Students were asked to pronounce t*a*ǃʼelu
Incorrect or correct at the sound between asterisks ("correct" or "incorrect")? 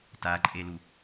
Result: correct